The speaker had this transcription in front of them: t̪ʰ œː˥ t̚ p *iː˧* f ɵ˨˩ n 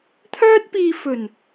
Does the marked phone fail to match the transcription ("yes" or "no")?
no